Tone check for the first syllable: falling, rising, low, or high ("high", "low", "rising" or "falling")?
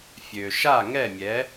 low